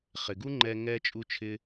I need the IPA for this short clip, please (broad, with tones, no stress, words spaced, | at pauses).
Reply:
χɪ˨ɡu˦ŋ͡ǃɛ˧ ŋɛ˦t͡ʃʼu˦t͡ʃʰɪ˦